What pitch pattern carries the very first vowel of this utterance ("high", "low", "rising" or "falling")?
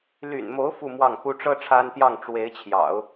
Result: low